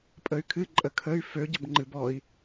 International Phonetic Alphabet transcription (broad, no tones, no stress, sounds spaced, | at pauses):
pʼ ə y̯ kʰ ɨ ǃʼ ə kʰ ə y̯ f ø ɟ ə b ŋ͡ǃ ɨ b ɔ i̯